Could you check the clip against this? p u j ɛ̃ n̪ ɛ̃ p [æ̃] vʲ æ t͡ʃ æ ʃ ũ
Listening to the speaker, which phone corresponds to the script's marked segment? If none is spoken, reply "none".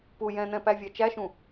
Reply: æ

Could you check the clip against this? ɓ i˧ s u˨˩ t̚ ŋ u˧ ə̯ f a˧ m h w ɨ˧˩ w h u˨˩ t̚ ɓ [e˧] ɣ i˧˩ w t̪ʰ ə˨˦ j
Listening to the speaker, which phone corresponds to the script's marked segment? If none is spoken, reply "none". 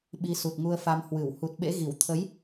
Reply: ḛ˧˥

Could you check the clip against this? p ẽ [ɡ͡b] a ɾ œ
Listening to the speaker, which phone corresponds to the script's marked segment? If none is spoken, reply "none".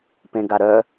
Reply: ɡ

